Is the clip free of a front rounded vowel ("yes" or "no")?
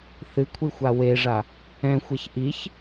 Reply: yes